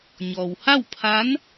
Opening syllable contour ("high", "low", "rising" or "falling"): low